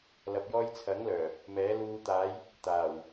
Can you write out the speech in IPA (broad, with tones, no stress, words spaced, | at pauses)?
lɐ˨p̚jɔː˧jt͡sʰɐ˨˥ŋlœː˨˩ | mɛː˨˥luː˧ t̪aː˨˧j | t̪aː˨˩w